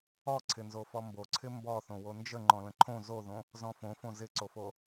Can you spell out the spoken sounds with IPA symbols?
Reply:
ɔ ǀʰ ɪ n z o f ɔ m b o ǀʰ ɪ m b ɔ θ õ w o n d͡ʒ ə ŋ͡ǃ ɔ̃ l ə̃ ǃʰ õ z o ð õ | z ɔ̃ f õ f õ z ɪ ǀ o f o

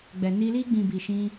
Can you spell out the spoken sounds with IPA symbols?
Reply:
ɡ͡b ɛ˨ n i˧ l i˧ ɡ͡b ĩ˨ b i˨ ʃ ĩ˧

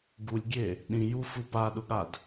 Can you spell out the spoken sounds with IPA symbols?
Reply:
ɡ u lʲ ɡʲ e | ɗ ĩ j u f u p a ɗ ʊ ɠ a d

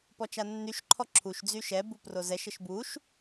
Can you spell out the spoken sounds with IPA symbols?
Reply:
p ɔ t͡ʃ a nː y ʃ ǃʰ ɔ ǁʰ u ʃ d͡z y ʃ ɛ b u p r o z ɛ ʃ ə ʃ b u ʃ

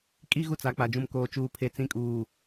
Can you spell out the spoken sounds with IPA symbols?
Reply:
kʼ i˦ ɣ u˦ t͡s a˨˦ k͡p a˨ d͡ʒ ũ˨ m k oː˨ t͡ʃ uː˨ pʰ e˨ t͡s ĩ˨˦ kʼ uː˨

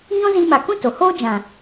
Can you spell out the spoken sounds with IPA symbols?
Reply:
ɲ ɔ̃˦ z i˧ m a˨ k ũ˦ t o˨ h oː˦ d͡ʒ ã˨

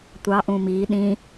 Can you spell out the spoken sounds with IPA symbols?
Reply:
tʷ ɑ ʔ ũ m i ɗ ĩ

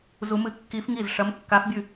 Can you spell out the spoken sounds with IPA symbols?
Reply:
z u˧˥ m ɨ˧˥ kː i˧˥ f ŋ i˥˩ z ʂ ɐ˧˥ m kː a˧˥ f bʲ ʉ˥˩

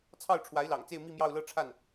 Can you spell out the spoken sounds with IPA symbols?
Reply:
t͡sʰ ɑ˥˩ ʊ̯ ʈ͡ʂʰ w a˧˥ ɪ̯ l ɑ̰˨˩ ŋ t͡s e˥˧ ɪ̯ m i˥˧ m j ɑ˥˧ ʊ̯ l ɤ˥˧ ʈ͡ʂʰ a˥˩ n

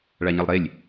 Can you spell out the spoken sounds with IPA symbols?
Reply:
ɭ a ɲ ɘ lˠ ɾ e lʲ

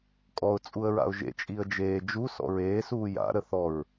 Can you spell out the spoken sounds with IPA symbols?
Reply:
kʼ ɔ ʊ̯ t͡sʼ u ə̯ ɹ a̰ ʊ̯ ʒ ḛ t͡ʃʼ i ə̯ d͡ʒ eː d͡ʒ u s ɔ̰ ɹ eː s uː j a̰ ɾ ə θ ɔ ɹ

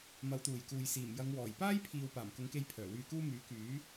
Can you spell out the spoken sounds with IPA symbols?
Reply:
m ɐ˨˧ w t̪ uː˨˩ j k uː˨ j s iː˨˩ m j ɐ˨˧ ŋ w ɔː˨˩ j p aː˥ j pʰ iː˨ w p aː˨˩ m k ʊ˨˥ ŋ k e˧ j pʰ œː˨˩ w yː˧ k uː˥ m yː˨˥ k yː˨˥

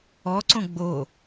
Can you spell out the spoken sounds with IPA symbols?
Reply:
ɔ ǀ õ ɡ͡b o

